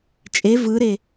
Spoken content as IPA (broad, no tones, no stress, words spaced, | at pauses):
t͡ʃʼe vɯɾe